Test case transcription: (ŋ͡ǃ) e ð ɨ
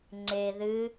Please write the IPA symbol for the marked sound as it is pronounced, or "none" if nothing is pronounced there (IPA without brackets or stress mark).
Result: ŋ͡ǀ